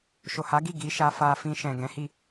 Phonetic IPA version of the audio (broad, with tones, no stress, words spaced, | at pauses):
ʃo˨ha˨˦ɡi˦˨ ɡi˨˦ʃa˧ fa˧ fĩ˧ʃɛ̃˨ ɡɛ̃˨˦hi˦˨